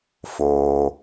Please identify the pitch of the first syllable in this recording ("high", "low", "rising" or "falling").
low